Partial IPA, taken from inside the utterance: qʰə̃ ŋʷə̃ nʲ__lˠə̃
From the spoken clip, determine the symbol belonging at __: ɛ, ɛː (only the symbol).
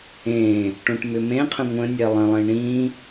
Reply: ɛ